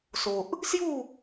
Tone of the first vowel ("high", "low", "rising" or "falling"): low